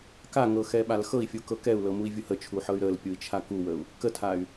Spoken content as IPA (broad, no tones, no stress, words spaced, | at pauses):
kaŋɤxɛɓal xɤi̯fʲukɤ kɛu̯lɤmui̯vʲu hət͡ʃʰuħɤy̯ ɾəlpʲui̯t͡ʃʰa kuwəu̯ | kətʰay̯